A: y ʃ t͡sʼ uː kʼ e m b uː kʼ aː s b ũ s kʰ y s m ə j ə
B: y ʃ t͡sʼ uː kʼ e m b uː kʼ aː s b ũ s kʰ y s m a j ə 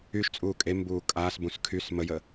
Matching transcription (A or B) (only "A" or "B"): A